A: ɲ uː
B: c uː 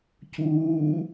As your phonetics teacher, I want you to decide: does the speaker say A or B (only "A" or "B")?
B